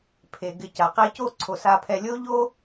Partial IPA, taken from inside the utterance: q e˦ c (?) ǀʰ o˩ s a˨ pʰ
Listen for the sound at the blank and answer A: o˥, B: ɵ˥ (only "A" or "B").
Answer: A